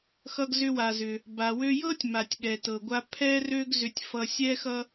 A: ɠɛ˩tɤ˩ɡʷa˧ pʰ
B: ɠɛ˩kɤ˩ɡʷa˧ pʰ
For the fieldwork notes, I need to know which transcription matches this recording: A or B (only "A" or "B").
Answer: A